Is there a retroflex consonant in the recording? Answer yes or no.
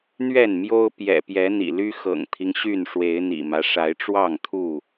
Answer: yes